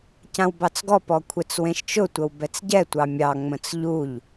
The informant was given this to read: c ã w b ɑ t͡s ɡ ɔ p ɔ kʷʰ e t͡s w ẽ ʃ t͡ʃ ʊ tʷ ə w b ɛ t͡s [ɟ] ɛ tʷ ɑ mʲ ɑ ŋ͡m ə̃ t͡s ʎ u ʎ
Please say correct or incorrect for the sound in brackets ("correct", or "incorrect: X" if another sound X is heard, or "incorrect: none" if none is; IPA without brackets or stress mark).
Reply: correct